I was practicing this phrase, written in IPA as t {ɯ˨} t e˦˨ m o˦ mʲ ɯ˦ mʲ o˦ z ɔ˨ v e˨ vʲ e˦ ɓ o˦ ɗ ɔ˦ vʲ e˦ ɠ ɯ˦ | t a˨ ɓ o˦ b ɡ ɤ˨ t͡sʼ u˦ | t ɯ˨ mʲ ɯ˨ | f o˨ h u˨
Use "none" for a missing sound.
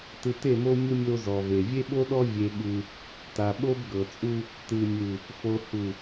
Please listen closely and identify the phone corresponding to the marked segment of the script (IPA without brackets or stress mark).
ɯ˨